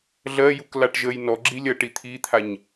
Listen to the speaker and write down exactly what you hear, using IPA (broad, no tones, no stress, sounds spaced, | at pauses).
ɮ ɜ j u k l a ʈ ʒ ə j n ɔ ɡ͡ǁ i lʲ ɜ ʈ i t̪ʰ i t̪ʰ a ɲ